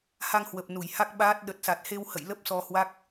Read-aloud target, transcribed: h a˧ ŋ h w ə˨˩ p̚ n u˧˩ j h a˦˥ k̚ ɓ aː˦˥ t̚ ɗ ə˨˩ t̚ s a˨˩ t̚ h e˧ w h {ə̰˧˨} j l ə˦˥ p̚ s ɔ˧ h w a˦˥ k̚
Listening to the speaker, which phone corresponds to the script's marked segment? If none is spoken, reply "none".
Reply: ə̰˧˨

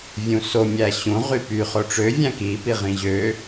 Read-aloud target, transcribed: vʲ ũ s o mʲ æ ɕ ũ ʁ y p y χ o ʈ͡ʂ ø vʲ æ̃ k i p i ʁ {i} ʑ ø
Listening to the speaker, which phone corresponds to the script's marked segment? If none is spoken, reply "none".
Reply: ĩ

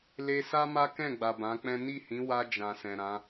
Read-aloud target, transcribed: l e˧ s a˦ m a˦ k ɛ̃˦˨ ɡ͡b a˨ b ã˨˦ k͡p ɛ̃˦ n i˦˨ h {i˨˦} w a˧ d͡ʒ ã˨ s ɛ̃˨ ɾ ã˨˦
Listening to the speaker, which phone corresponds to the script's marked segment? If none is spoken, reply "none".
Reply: ĩ˨˦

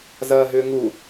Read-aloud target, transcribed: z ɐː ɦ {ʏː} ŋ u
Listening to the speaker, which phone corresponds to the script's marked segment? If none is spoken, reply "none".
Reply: ʏː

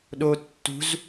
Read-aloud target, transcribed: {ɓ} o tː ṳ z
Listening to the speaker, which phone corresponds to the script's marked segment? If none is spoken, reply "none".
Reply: ɗ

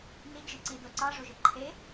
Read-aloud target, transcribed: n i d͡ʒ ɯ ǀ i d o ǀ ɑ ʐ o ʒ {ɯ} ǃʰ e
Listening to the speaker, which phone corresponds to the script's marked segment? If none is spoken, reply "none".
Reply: ɯ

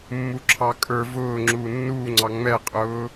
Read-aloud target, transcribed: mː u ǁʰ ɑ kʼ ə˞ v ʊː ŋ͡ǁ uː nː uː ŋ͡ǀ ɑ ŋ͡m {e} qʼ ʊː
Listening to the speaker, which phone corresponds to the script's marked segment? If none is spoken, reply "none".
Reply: ɛ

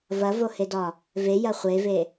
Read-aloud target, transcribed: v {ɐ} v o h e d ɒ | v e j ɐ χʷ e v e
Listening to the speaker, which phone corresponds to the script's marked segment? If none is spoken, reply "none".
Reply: ɐ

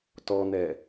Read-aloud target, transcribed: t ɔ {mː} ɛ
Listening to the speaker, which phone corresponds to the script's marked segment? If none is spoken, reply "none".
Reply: n̪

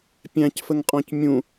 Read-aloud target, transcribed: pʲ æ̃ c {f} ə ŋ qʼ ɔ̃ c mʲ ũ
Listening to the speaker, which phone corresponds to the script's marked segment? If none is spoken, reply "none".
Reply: f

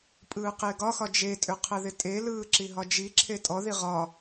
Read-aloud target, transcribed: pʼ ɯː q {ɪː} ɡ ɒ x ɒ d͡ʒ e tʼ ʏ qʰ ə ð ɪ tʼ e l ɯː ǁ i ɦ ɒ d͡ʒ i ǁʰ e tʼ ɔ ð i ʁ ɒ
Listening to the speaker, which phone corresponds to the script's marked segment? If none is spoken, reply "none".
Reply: ɪː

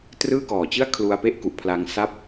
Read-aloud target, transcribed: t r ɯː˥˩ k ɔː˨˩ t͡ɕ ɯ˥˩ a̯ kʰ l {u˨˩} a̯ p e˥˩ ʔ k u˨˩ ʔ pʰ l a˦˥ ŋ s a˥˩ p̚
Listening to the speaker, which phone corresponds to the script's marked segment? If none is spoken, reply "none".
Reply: u˧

